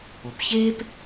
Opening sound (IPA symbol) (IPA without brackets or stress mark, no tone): o